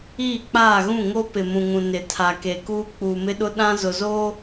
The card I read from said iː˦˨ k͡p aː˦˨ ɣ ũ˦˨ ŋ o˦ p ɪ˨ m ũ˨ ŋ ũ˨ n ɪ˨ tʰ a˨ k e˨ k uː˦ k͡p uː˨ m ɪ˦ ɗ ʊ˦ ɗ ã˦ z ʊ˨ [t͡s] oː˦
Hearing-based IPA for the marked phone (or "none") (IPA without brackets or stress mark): z